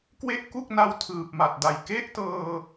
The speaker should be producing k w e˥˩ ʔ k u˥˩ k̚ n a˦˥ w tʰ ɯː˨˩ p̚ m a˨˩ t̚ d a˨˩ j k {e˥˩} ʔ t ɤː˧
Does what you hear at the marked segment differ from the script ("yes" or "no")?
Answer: yes